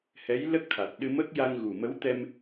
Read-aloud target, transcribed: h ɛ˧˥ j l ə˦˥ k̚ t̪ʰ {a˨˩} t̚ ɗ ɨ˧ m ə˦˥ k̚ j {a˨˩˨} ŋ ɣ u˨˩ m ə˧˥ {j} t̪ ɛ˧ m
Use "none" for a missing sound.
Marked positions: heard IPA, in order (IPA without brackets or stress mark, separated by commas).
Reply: a˨˩, a˧, w